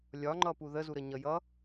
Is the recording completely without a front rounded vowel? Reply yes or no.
yes